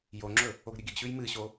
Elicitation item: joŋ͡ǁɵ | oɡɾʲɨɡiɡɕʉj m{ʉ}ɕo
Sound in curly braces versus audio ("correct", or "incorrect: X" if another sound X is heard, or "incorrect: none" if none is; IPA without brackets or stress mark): incorrect: ɨ